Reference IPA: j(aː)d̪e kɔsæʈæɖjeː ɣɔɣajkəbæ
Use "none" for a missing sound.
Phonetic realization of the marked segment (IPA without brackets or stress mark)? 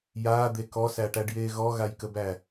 aː